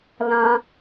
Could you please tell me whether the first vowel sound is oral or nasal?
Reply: nasal